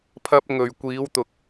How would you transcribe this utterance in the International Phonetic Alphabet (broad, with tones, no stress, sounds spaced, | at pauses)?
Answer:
pʰ ɐ˧ p̚ ŋ ɵ˨ ɥ kʷ iː˨˧ w t̪ ʊ˨ k̚